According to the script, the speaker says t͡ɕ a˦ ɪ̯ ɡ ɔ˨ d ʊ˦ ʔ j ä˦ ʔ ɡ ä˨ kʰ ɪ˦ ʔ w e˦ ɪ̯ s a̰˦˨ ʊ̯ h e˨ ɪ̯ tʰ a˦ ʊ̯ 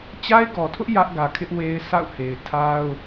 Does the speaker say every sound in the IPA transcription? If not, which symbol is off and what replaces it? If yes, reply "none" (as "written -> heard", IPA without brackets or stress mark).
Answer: d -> tʰ